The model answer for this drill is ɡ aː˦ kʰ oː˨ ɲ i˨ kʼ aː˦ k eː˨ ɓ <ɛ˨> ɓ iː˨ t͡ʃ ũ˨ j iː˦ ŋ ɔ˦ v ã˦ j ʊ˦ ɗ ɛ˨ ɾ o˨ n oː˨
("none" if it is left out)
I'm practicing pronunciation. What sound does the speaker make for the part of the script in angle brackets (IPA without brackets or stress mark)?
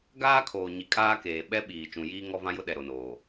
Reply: ɛ˦